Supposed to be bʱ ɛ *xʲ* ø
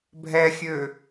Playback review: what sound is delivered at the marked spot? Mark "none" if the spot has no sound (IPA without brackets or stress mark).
xʲ